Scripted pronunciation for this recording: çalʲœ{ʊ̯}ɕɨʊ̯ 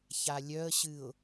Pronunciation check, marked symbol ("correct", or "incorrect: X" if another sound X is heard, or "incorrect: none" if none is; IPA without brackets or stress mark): incorrect: ə̯